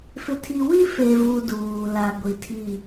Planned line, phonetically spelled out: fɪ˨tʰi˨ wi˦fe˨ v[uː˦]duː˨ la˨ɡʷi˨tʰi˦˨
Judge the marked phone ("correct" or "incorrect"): incorrect